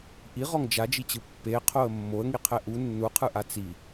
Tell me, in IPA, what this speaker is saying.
ʔ i ʁ ɔ ŋ d͡ʒ a d͡ʒ i t͡ɕ ɯ pː e qʰ o ə̯ mː o ə̯ ŋ i qʰ ɛ ʔ u nː u qʰ ɯ ʔ a t͡s i

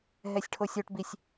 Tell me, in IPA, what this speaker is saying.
ɦ ɛ sʲ ʈʰ o sʲ o ʈ b i sʲ

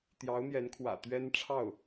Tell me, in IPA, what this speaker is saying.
t̪ j ɑ˧˥ ʊ̯ n̪ j ɛ˧˥ n kʰ w ä̰˨˩ t̪ ɥ ɛ˥ n ʈ͡ʂʰ ɑ˥˩ ʊ̯

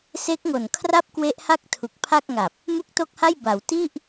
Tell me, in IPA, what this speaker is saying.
s e˦˥ k̚ ŋ o˨˩ n kʰ r a˥˩ p̚ k w e˦˥ ʔ h a˥˩ k̚ tʰ u˨˩ k̚ pʰ a˥˩ k̚ ŋ a˨˩ p̚ | m u˥˩ k̚ t o˥˩ k̚ h a˥˩ j b a˩˦ w t i˥˩ ʔ

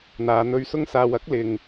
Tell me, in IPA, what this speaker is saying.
n̪ aː˨˧ n̪ ɵ˧ ɥ s ʊ˧ ŋ s aː˨ w ɐ˨˥ k̚ l ɪ˨ ŋ

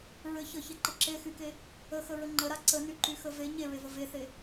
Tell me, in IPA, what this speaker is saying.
ɹ ɘ ç ə ç e ǃ ə ǁ e x y k e | ə x ə ɹ ə ŋ͡ǃ ə ɾ a ǀ ə n y ǃ y x ə v e ɲ e ɹ e v ə v e θ e

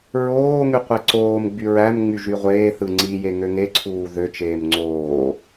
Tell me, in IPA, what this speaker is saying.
ɹ oː ŋ y qʷ e ǀ oː m ɡ͡b y ɹ æ m ŋ͡m y ʒ y ʁʷ eː θ ɯ ŋ͡ǀ i j e ŋ ø ŋ e ǀʰ uː ð ø t͡ʃ eː m ŋ͡ǀ oː

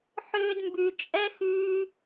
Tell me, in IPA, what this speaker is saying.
ħ ʏː˧ d m b y˨ t͡ʃʼ ɛ˦ x yː˧

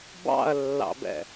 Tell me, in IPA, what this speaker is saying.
b ɑ̰ ɐ̯ lː ɑ̰ b ɛ̰

